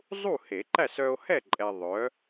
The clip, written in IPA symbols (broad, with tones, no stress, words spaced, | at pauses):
zˤu˥˨he˨˩˦ǃæ˥˨s œ˧o̯hɛ˥˨ ǃʼɛ˧ðˤœ˨˥